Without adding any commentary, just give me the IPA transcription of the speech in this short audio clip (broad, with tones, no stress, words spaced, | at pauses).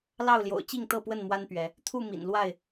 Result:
lɑ˥˨ʊ̯ljo̰˨˩ʊ̯t͡ɕi˥˨ŋ t̪ɤ˥˨pwə˥˨nmwa˦npɥɛ˨˦ | t̪ʰu˥˨mḭ˨˩n lwa˥˨ɪ̯